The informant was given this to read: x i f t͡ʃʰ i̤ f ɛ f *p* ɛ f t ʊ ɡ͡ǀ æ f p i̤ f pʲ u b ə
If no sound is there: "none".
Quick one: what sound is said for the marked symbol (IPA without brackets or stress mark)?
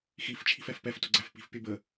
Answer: p